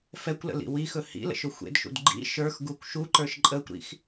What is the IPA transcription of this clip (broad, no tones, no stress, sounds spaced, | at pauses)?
f ɛ kʷ l ə̰ l ḭ w i x ɵ h ḭ l ə̰ ʃ ɵ xʷ ḛ d ʃ ṵ d ɡ͡ǃ ḭ ʃ ə˞ x ɡ u kʷ ʃ u ǃ ə˞ ʃ ǃʼ əː kʷ ɾ ḭ x